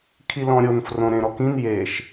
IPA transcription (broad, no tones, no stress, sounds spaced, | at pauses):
kʰ i l ɔ̃ ɾʲ o n f r õ ɾ ẽ ɾ ɔ k ĩ n j e ʃ